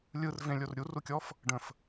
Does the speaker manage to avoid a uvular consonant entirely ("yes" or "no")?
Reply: yes